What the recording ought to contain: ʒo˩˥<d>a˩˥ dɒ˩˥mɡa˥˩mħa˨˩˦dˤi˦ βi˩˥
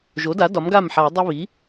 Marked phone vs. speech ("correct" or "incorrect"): correct